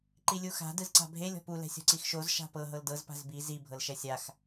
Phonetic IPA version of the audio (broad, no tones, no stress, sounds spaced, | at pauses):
ǃ i lʲ u x a̤ d ɯ z ǀ a̤ bʱ e lʲ ɔ̤ p u l ɛ̤ sʲ ɔ̤ ǀ i x ʃ o z ʃ a̤ p ɤ ɦ ɤ l d ɤ z p a̤ z b i z i bʱ ɤ l ʃ ɛ sʲ a x